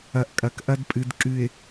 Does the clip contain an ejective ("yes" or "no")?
yes